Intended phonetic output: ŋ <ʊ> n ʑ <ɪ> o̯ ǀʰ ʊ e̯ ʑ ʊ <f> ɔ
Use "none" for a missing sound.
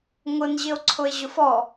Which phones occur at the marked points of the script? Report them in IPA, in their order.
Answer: ʊ, ɪ, f

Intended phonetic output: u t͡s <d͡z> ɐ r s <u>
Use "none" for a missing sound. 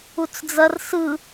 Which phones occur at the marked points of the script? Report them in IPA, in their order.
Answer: d͡z, ɯ

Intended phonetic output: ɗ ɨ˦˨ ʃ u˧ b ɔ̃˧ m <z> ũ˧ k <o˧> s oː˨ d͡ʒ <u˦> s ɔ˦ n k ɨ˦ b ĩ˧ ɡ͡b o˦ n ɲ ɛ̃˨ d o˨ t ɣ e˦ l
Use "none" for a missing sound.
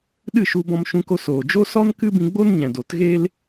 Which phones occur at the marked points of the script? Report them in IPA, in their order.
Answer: ʃ, o˧, o˦

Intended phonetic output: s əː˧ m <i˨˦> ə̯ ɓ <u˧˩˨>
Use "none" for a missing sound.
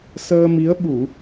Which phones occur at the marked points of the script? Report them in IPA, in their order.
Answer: i˨˦, u˧˩˨

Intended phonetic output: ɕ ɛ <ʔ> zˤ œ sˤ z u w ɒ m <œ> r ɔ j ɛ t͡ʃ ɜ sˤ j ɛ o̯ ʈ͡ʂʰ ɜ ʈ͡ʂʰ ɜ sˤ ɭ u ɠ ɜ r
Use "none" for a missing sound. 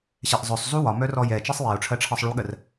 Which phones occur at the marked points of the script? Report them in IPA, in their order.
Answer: ʔ, œ

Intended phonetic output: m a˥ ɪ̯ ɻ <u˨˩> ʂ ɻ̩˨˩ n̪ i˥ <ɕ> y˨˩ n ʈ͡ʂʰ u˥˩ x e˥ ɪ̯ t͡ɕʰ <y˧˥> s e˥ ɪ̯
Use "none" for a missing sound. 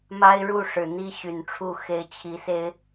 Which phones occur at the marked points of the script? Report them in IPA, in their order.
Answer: u˥˩, ɕ, i˧˥

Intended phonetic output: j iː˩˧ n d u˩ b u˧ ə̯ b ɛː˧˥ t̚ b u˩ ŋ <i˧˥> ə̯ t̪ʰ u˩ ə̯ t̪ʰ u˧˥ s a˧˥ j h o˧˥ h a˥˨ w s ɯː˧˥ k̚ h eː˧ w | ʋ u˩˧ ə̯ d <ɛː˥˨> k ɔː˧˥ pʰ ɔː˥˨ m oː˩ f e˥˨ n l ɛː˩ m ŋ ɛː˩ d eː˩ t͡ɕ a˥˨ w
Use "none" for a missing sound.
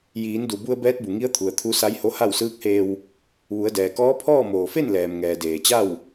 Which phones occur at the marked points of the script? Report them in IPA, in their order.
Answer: i˧˥, ɛː˩

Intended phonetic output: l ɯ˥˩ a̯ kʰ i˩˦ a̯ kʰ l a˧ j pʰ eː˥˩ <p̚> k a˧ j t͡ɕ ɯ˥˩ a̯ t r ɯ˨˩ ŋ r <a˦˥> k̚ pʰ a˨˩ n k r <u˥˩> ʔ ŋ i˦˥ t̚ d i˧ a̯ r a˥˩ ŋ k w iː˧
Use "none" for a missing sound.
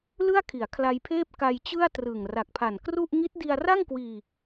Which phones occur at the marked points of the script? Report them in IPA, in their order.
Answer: p̚, a˨˩, u˥˩

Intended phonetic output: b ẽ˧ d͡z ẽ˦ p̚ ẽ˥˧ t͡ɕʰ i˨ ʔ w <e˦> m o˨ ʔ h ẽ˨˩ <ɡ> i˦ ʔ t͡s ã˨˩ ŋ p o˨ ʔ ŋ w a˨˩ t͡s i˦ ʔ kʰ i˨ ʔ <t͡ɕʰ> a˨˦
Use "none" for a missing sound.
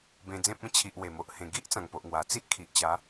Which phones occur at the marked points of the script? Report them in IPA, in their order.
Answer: e˨˩, ɡ, t͡ɕ

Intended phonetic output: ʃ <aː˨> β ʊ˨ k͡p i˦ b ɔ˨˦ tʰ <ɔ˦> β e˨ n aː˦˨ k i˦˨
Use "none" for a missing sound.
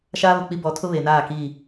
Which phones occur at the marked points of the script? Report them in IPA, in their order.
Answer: aː˦, ʊ˦

